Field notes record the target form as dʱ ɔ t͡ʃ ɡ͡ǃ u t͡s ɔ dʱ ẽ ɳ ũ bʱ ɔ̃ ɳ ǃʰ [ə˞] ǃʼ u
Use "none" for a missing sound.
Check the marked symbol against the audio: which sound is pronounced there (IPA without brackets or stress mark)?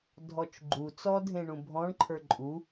ə˞